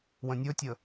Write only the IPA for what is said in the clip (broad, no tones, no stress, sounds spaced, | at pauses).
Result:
w ə̃ nʲ ɵ tʲ ə